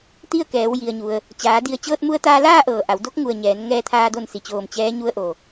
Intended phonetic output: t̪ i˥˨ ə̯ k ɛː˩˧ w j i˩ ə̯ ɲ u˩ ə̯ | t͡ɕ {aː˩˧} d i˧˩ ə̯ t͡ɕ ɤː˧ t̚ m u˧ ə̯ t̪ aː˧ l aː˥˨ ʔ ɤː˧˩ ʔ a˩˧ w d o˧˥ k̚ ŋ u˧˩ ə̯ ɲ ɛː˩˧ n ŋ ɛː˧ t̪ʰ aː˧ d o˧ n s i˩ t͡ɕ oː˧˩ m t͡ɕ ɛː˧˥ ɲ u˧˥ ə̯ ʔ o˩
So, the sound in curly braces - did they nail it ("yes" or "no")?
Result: yes